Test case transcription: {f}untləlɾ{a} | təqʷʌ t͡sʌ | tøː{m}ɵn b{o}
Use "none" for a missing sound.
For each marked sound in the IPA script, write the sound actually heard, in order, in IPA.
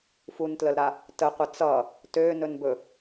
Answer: f, a, n, ɵ

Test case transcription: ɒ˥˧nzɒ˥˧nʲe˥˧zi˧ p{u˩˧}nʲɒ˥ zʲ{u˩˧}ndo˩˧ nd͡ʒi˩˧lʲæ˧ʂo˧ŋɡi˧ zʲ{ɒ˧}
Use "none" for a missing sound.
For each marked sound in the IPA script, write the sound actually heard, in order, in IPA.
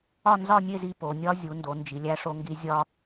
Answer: o˩˧, u˩˧, ɒ˧

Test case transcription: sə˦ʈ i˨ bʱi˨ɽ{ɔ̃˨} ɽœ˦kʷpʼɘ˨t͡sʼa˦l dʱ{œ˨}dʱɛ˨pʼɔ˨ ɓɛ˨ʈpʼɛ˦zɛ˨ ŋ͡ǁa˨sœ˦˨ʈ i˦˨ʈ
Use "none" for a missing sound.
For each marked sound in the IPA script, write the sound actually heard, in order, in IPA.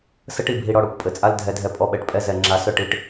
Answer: ɔ˨, ɛ˨

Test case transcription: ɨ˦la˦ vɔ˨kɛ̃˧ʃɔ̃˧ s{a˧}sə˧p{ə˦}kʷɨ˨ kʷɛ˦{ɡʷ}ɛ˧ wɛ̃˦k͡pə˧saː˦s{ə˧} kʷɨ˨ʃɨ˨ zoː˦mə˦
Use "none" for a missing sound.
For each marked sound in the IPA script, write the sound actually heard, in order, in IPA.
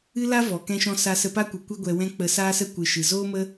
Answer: a˧, a˦, ɡʷ, ə˦

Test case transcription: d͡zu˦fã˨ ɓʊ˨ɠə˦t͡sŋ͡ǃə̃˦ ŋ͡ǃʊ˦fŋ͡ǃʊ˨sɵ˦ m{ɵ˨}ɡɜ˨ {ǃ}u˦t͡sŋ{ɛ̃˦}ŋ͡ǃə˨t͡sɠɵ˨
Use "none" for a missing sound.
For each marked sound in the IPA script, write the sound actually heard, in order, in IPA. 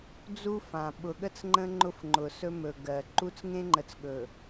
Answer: ɵ˨, ǃ, ẽ˦

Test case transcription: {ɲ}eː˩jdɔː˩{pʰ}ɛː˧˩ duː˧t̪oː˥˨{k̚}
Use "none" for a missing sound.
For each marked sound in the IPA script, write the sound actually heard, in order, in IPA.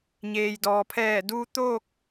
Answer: ɲ, pʰ, k̚

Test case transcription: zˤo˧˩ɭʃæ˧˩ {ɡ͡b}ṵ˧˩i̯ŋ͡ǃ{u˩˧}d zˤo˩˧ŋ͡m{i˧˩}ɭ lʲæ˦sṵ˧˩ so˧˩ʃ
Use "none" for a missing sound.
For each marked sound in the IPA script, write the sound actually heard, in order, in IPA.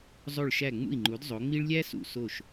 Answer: ŋ͡m, u˩˧, i˦

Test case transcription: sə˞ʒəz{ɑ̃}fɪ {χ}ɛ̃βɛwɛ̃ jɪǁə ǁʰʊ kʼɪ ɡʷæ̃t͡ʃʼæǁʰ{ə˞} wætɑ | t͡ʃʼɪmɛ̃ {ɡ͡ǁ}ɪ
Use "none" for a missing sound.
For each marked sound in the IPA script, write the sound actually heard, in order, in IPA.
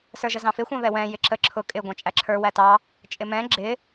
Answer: ɑ̃, xʷ, ə˞, ɡ͡ǁ

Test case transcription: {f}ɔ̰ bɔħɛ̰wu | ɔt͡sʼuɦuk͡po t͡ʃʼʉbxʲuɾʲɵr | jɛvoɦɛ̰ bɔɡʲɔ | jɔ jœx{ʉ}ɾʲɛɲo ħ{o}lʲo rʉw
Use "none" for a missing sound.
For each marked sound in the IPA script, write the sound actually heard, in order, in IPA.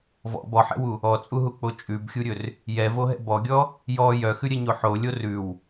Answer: v, ʉ, o

